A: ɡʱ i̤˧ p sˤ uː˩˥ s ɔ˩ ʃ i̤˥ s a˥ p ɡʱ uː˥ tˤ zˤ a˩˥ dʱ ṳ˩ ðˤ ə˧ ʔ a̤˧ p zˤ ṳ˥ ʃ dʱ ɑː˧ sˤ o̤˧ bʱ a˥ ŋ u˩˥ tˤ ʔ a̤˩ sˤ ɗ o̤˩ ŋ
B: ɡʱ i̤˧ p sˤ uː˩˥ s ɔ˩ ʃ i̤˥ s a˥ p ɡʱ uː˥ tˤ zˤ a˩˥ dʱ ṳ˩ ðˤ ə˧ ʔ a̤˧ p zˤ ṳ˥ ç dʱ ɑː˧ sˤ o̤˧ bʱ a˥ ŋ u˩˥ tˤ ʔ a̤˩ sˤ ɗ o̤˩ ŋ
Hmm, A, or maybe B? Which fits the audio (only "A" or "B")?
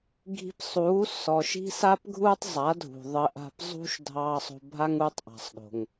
A